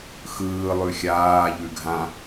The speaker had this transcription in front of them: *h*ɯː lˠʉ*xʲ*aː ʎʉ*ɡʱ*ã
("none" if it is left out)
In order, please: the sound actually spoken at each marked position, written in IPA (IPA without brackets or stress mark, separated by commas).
x, xʲ, ɡʱ